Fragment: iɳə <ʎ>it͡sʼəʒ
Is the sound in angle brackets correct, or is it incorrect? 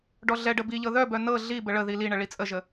incorrect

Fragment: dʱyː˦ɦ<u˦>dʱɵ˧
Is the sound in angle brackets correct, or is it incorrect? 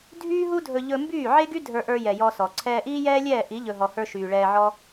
correct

